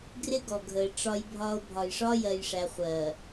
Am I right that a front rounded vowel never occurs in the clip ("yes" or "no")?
yes